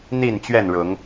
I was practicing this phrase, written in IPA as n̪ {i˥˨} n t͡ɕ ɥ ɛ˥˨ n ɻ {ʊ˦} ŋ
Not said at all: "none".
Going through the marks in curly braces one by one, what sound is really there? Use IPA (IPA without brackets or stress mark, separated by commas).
i˥˨, ʊ˨˦